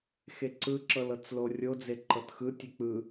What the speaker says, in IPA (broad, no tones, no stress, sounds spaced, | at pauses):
x e ǀ ɯ ǁ ɤ l ɤ t͡s l o rʲ o d͡z e ǃ ɤ t x ɯ tʲ e k͡p ɯ